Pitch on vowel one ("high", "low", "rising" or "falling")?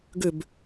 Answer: falling